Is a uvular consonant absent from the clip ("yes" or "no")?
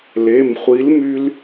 no